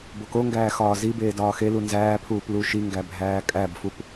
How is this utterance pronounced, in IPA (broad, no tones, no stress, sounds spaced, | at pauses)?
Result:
b o k o ŋ ɡ æː x ɒː z i b eː d ɒː x e l u n z æː pʰ uː p l u ʃ i ŋ ɡ æ bʱ æː kʼ æ b f u p